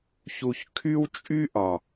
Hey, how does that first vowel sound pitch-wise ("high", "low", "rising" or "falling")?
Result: low